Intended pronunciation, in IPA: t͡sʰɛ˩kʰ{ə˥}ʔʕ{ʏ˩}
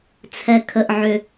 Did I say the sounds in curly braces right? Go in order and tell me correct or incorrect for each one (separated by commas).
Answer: incorrect, correct